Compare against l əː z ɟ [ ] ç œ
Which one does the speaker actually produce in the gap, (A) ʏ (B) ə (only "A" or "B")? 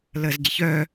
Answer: B